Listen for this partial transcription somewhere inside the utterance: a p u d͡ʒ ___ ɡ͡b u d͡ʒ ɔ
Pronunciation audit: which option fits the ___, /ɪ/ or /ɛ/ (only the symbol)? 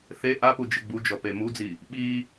ɪ